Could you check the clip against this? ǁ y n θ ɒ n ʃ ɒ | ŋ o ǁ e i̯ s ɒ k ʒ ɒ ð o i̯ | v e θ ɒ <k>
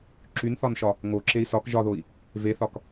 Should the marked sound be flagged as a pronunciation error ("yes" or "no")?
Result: no